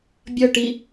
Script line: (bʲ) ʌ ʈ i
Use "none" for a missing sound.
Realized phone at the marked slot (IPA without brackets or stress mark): bʲ